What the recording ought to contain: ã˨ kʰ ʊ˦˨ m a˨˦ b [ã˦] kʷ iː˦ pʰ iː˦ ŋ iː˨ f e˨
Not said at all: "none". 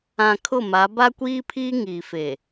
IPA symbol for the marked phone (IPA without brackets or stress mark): a˦